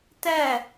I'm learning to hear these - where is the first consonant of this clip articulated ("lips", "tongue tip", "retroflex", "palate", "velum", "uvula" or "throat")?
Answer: tongue tip